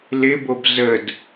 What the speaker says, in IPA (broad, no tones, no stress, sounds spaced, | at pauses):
l ɪ b o b z ə d